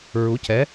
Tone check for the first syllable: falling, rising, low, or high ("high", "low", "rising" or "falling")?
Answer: rising